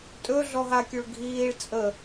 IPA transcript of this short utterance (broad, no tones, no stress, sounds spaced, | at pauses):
tʼ ɵ ɮ ɔ ɦ a kʲ o ɭ ɡʱ iː ɭ t͡sʼ ə